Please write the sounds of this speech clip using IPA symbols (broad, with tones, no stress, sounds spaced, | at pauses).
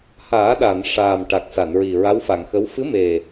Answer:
h aː˨˩˦ ɗ a˨˩˨ n ʂ aː˨˩ m ʈ a˨˩ k̚ s a˨˩˨ n ɹ i˨˩ ɹ a˧˥ w f a˨˩˨ ŋ x ə˧˥ w f ɨ˧˥ m e˨˩